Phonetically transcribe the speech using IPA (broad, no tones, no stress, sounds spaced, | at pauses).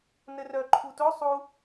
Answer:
n ɘ r œ ǃʰ u t o sˤ u